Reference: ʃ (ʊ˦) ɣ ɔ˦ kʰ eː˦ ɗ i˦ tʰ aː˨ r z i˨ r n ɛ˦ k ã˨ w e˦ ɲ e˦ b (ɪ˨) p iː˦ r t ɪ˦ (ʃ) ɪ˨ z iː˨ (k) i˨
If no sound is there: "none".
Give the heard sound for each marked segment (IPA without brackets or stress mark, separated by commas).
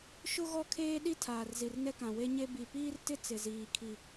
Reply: ʊ˦, i˨, t͡s, kʰ